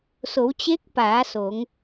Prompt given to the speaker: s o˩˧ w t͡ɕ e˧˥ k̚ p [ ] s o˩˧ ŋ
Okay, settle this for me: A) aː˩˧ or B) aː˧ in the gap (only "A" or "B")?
A